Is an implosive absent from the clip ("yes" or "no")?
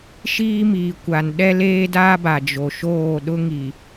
no